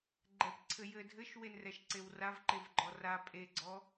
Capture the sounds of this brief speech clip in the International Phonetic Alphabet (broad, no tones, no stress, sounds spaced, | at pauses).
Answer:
ɡ͡ǃ ɛ p ǀʰ ɘ j ɘ dʱ ɘ ʃ w e n r ɛ ʃ ǀ e w r a v ǃ e v ɡ͡ǃ ɔ r a pʼ e ɡ͡ǀ ɔ